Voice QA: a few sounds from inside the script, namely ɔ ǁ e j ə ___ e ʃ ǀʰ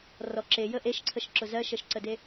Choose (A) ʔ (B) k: A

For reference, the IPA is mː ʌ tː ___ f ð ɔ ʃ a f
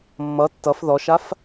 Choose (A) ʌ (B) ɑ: A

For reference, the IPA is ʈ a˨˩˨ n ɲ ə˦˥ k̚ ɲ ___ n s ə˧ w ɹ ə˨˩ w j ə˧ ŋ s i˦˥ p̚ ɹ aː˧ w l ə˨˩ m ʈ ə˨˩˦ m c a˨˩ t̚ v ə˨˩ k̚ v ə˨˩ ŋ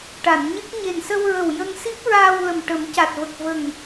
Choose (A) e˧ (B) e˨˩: B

